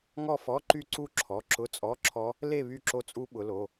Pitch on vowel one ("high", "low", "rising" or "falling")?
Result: falling